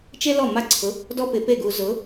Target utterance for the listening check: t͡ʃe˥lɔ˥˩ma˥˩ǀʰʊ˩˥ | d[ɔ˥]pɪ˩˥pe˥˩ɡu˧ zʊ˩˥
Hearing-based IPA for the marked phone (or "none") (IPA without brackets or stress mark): ɔ˥